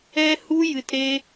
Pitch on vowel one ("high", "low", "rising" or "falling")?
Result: high